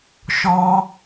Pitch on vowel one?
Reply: high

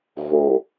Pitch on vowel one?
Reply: low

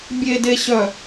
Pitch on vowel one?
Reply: low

